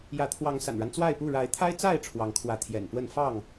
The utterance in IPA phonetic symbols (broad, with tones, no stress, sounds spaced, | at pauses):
j ä˨˦ t̪ʰ w ɑ˨˦ ŋ s a̰˨˩ n ɻ a˦ n t͡s w a˥˨ ɪ̯ p u˥˨ ɻ a˨˦ ɪ̯ t̪ʰ a˦ ɪ̯ t͡s a˥˨ ɪ̯ ʈ͡ʂʰ w ɑ˨˦ ŋ kʰ w ä˨˦ t̪ʰ j ɛ̰˨˩ n p w ə˥˨ n f ɑ˥˨ ŋ